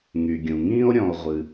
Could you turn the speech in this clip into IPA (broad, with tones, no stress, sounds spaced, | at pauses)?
ŋ y˩ ɡʲ ũ˩ ŋ ĩː˥ o̯ ɾʲ ɔ̃˨ o̯ ʁʷ ɨ˨